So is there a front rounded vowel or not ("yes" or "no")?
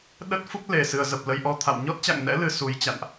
no